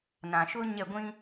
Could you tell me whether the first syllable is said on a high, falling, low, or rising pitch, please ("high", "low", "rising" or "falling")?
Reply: low